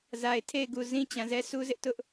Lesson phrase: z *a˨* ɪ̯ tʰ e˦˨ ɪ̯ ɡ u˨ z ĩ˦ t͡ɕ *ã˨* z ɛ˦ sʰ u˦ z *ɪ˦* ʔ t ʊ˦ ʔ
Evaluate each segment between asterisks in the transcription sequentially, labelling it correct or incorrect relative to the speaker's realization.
correct, correct, correct

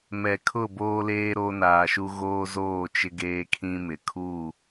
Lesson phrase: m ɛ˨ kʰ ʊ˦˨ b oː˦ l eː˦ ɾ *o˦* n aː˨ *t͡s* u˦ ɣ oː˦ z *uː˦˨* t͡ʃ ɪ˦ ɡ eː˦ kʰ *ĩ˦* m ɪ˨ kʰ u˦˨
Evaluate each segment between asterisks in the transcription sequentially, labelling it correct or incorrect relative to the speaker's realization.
correct, incorrect, incorrect, correct

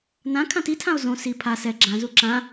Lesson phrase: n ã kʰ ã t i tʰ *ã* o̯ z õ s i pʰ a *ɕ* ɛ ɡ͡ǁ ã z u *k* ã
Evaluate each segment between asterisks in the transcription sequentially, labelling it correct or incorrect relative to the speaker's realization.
correct, incorrect, incorrect

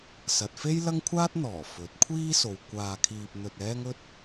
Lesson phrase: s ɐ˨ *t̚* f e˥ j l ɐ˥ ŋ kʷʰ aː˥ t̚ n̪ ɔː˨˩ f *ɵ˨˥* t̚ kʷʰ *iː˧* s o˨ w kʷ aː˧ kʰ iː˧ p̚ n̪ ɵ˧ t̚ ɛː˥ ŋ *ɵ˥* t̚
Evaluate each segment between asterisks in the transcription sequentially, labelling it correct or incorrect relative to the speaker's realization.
correct, correct, incorrect, correct

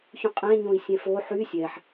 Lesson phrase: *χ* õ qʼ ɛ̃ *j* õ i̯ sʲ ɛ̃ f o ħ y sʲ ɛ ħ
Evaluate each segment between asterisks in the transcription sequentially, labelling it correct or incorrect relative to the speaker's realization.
incorrect, incorrect

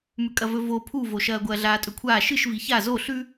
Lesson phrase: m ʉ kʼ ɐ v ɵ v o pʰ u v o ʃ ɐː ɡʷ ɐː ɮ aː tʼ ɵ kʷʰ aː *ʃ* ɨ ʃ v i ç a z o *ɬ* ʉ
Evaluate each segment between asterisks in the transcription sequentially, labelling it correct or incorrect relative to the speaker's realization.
correct, correct

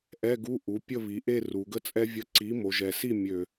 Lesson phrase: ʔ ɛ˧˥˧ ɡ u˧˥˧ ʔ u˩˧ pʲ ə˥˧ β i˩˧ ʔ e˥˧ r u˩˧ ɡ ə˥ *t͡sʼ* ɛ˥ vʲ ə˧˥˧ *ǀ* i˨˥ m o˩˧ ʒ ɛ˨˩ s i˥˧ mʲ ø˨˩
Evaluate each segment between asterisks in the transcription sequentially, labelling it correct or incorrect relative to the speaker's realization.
correct, correct

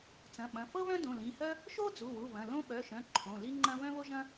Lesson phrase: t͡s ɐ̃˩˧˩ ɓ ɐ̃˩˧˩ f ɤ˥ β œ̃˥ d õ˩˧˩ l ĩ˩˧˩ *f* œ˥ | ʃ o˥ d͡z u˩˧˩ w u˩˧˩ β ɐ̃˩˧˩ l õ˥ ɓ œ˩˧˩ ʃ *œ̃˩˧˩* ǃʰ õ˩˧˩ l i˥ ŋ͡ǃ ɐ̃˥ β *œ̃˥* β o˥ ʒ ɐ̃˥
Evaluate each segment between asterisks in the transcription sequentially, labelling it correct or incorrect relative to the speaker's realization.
incorrect, correct, correct

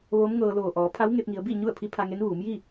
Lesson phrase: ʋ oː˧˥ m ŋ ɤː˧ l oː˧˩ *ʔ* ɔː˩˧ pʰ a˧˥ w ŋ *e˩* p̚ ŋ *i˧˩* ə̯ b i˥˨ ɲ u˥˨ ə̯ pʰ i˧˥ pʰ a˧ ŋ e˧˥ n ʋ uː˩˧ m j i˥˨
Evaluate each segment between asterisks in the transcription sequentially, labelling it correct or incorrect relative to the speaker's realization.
correct, incorrect, incorrect

